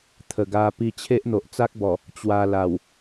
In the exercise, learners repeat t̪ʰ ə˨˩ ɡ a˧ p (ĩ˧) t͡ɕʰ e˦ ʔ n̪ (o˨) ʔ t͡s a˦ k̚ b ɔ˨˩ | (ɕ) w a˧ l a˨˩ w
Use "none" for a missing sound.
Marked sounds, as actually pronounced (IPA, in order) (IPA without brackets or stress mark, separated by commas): i˧, o˨, t͡ɕ